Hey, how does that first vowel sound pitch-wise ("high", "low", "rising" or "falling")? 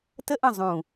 high